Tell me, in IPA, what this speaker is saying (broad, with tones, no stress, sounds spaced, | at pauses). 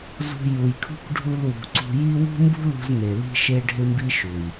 z ṳ˧ j u˨ j kʰ ṳ˦ k ɖʱ u˧ l w ṳ˨ ǀ ṳ˧ j i˦ w ṳ˦ m b ṳ˦ l ṳ˧ z n̪ e˨ l i̤˦ ʃ e˦ ɖʱ ɪ˦ m b i˦ ʃ u˨ j